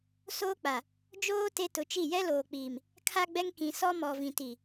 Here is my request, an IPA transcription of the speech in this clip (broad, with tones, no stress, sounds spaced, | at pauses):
s oː˦ k͡p a˨ | d͡ʒ oː˦ t e˦ t ʊ˨˦ t͡ʃ i˦˨ j ɛ˦ l oː˨ k͡p iː˨ m | kʰ a˦ ɡ͡b ɛ˦ ŋ k ĩ˨ s ɔ˦ m ɔ˨ v ĩ˨ t i˨